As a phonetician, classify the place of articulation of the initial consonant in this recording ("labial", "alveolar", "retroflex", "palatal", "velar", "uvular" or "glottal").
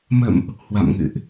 labial